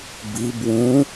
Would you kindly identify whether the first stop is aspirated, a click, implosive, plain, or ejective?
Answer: plain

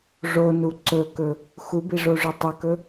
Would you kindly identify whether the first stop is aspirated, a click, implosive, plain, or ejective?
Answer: click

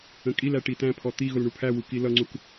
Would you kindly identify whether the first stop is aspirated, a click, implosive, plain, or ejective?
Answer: ejective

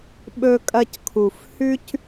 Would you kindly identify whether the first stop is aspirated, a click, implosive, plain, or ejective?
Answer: implosive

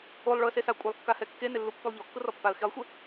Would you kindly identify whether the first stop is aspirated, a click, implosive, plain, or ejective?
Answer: ejective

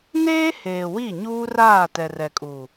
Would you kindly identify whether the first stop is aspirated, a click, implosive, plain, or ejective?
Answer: plain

